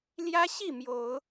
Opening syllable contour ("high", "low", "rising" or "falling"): high